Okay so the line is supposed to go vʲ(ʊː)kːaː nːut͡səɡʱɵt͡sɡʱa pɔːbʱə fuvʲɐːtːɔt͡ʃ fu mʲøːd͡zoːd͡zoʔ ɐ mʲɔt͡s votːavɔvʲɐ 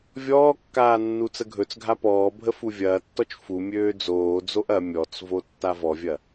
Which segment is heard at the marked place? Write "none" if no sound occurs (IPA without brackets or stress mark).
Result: ɔː